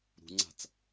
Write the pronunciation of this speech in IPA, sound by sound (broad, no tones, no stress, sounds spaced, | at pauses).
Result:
ɾ ṳ ŋ͡ǀ a̤ t͡s